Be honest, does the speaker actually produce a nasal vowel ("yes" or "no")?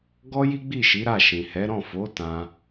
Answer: yes